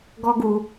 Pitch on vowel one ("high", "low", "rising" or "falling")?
high